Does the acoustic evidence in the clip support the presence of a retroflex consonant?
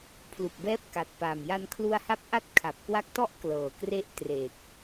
no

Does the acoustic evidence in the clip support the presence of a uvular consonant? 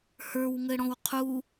yes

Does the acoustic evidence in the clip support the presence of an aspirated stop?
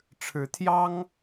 yes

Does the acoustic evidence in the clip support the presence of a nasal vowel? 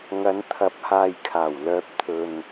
no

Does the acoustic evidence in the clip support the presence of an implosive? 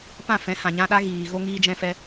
yes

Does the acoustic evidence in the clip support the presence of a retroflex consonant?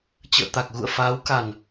no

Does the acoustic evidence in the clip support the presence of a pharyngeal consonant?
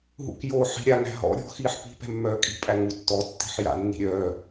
yes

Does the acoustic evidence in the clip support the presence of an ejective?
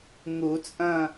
yes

